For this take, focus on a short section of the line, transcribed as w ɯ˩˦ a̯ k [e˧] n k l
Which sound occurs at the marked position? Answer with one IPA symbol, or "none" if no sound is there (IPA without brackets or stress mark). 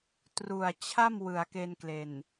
e˧